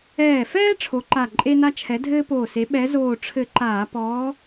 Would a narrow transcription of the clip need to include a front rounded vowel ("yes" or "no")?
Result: no